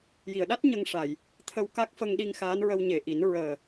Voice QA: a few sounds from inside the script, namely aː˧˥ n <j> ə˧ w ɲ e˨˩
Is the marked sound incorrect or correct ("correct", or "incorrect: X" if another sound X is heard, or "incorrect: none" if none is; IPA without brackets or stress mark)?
incorrect: ɹ